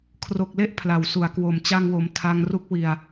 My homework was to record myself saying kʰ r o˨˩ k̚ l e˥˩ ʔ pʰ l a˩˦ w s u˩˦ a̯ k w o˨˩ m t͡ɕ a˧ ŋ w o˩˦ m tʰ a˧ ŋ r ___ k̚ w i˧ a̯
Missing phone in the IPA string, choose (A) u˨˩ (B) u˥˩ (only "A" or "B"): B